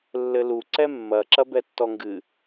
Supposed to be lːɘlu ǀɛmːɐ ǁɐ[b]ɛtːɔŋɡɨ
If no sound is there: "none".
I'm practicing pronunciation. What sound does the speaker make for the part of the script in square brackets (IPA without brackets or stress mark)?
b